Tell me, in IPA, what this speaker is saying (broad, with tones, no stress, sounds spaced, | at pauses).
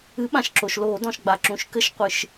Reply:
ɨ˨˥ ɓ ã˩ ʃ ǁ o˩ ʃ l oː˧˩˧ d ɔ̃˩ ʃ ɡ͡b a˩ ǁ ũ˩ ʃ k ɘ˧˩˧ ʃ qʷ ɨ˩ ʃ